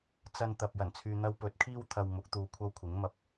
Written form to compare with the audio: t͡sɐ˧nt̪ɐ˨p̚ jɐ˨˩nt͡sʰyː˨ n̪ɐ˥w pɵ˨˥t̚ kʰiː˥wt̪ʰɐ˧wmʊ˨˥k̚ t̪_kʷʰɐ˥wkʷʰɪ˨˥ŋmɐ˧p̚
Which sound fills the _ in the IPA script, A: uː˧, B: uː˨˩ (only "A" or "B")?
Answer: A